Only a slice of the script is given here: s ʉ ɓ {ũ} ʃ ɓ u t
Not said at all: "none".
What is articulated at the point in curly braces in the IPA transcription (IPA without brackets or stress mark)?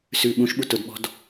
ũ